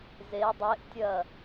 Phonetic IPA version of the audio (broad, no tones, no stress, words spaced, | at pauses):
ze dˤeʔtʲɐ